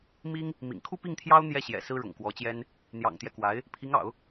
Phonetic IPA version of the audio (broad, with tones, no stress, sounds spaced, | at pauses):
m i˥ ŋ | m ḭ˨˩ ŋ kʰ u˥˧ p i˥˩ ŋ t̪ʰ j ɑ˥ ʊ̯ n̪ j ɛ˥˩ ɕ j ɛ̰˨˩ s ɹ̩˥ ɻ ʊ̰˨˩ ŋ k w ɔ˧˥ t͡ɕ j ɛ˥ n | n̪ j ɑ̰˨˩ ŋ t̪ j ɛ˦ k w a˧˥ ɪ̯ | pʰ i˧˥ ŋ ɑ̰˨˩˦ ʊ̯